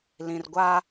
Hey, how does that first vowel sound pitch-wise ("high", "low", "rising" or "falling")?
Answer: low